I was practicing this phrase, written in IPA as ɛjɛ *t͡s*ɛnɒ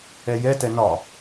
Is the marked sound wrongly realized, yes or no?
yes